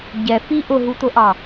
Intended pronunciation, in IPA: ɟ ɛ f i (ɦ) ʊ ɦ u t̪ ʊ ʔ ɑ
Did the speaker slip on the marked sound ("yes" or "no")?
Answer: yes